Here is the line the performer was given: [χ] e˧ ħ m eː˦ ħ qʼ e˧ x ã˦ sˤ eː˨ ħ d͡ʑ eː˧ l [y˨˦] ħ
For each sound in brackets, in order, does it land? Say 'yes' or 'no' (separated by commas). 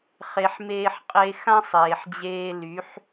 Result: yes, yes